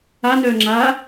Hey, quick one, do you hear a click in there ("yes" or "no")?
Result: yes